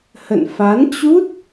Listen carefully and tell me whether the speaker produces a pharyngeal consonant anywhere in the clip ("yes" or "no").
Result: no